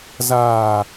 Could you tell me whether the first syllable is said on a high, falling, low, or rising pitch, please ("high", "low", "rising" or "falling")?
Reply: low